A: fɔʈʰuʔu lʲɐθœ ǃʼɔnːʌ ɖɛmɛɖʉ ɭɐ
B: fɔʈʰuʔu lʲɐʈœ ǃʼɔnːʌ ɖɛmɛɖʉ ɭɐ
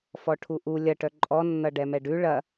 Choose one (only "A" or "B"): B